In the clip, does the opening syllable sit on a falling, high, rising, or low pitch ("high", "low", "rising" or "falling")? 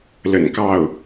low